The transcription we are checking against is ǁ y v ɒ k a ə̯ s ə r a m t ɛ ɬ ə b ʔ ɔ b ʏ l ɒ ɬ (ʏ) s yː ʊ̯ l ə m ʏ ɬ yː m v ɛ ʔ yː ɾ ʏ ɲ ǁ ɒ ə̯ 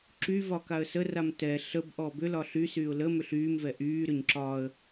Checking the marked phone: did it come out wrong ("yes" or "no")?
yes